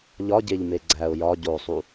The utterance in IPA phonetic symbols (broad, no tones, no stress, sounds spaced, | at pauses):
ʎ ɒ ɟ e ʎ m e ɡ͡ǀ æ ʊ̯ j ɒ ɟ o sˤ u